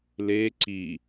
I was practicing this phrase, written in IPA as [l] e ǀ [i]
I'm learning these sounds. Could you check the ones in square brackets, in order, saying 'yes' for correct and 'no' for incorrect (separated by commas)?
yes, yes